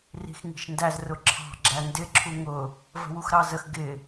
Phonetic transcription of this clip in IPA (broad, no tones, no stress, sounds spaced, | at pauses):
r i̤ x ŋ i̤ ʃ n d æ z r ʊ ǁʰ ɑ̤ ɡ͡ǁ æ n d ɪ ǁʰ u ŋ ʊ | v ə̤ w u x ɾ ɑ z ə x ɡ ɪ